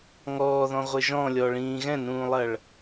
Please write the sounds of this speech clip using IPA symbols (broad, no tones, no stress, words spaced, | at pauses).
ŋɔːðɔ̃ʁʷɘ ʒɔ̃lʲɔɭĩː ɣɛ̃nũːlˠɐɭ